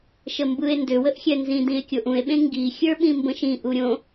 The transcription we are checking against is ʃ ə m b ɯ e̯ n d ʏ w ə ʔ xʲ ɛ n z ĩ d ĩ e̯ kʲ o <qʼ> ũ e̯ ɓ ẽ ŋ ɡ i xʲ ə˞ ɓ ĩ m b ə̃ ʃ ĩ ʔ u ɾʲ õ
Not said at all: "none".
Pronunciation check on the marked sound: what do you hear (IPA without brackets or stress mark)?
ʔ